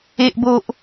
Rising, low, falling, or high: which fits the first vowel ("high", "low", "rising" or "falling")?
high